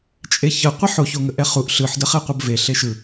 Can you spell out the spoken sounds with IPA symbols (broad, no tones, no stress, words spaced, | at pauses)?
t͡ʃʼeçə qʷiħo çoŋəʔɛχuʔ ɬɯħdə χɛqʷəb ve ɬeʃɯ